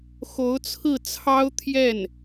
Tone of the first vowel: rising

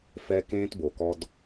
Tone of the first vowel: high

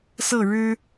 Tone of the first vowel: falling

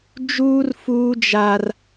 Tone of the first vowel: high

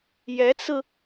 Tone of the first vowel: rising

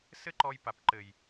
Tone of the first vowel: high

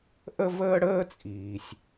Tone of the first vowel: high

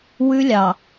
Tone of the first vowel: high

